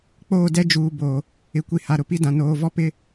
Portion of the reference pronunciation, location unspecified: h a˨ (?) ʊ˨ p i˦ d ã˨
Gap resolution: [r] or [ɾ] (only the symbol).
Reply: ɾ